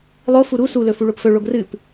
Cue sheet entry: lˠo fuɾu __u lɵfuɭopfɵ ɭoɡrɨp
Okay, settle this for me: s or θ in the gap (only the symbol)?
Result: s